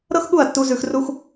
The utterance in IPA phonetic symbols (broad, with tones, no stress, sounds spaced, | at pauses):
ɾ ɤ˦ x ɠ u˦˨ ɐ̯ tː u˧ z ʉ˧ x r u˦ x